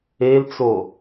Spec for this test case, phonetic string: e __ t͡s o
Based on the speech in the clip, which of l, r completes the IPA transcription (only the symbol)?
l